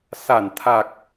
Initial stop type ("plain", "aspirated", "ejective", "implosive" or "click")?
aspirated